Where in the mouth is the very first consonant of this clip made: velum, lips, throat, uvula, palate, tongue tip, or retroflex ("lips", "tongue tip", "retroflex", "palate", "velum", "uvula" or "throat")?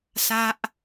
tongue tip